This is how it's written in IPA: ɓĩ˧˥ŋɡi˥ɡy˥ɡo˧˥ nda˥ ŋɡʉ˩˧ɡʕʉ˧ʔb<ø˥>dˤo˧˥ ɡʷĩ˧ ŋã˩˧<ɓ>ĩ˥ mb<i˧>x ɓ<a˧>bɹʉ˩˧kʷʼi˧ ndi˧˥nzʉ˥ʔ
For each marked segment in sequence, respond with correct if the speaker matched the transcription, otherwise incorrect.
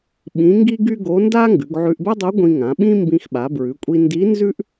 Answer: incorrect: ɛ˥, correct, incorrect: ĩ˧, incorrect: a˩˧

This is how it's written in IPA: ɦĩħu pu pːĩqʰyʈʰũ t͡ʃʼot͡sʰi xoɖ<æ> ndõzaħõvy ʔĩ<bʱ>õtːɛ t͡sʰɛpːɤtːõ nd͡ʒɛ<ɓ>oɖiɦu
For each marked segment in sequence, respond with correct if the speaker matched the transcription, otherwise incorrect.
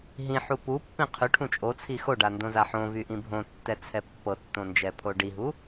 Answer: incorrect: a, correct, incorrect: pʰ

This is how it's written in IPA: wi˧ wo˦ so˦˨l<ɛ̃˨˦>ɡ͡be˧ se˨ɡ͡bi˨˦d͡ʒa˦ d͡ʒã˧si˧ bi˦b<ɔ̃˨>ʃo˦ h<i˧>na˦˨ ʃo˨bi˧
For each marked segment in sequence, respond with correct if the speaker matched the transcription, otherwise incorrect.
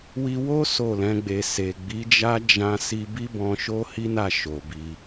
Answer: correct, incorrect: ɔ̃˧, incorrect: i˦

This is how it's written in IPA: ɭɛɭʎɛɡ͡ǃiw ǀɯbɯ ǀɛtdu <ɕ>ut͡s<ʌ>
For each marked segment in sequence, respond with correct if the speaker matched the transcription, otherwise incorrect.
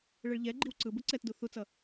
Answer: incorrect: θ, correct

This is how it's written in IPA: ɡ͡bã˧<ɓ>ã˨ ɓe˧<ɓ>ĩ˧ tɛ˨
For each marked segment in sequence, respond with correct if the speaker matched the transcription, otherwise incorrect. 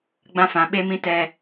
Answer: incorrect: f, incorrect: m

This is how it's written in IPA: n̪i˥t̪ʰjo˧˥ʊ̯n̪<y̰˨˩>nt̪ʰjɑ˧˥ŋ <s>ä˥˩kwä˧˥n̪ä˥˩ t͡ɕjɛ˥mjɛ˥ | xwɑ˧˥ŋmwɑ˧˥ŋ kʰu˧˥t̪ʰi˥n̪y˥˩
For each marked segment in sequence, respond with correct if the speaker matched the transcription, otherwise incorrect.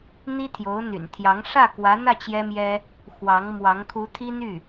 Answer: correct, incorrect: ʂ

